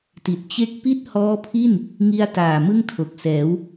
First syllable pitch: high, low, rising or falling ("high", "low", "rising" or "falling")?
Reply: low